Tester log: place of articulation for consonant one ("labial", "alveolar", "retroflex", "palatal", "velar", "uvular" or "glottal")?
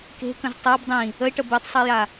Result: velar